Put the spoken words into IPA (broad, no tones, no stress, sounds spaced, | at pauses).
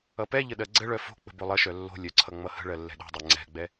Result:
ʌ p ɛ ʎ ə ɗ ɜ ɡ͡ǀ ə ɭ œ f o̤ k͡p ə̤ b o lˠ ʌ ʃ œ lː o̤ lʲ œ ǀʰ ʌ ŋ͡m ʌ h ə̤ ɭ ɜ lː ɛ̤ ɗ o̤ dˤ ɜ ŋ͡ǀ ɛ̤ ɡ͡b ɛ